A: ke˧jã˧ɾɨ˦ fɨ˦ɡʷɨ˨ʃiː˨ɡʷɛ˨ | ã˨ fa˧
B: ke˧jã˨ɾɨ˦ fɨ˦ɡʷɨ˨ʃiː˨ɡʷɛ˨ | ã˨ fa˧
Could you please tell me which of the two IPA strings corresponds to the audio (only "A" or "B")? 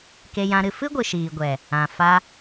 A